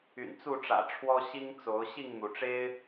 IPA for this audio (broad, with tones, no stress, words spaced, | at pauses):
y̰˨˩nt͡su˥˨ʈ͡ʂä̰˨˩ʈ͡ʂʰwɔ˦ ɕi˦ŋt͡so˨˦ʊ̯ ɕi˥˨ŋn̪u˩ʈ͡ʂe˦ɪ̯